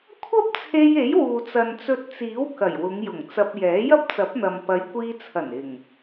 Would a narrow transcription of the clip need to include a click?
no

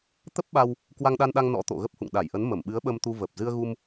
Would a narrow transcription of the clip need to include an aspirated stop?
no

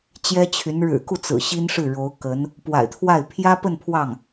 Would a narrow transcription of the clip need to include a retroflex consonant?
yes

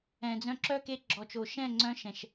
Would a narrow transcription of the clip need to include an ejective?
no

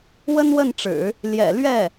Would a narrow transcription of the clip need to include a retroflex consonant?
yes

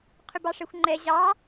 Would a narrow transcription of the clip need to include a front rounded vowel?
yes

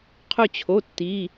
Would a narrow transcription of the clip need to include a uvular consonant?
yes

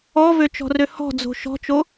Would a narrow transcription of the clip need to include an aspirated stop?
no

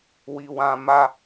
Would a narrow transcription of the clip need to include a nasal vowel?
yes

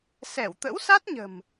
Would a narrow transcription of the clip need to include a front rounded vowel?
no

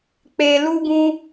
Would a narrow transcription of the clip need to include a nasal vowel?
yes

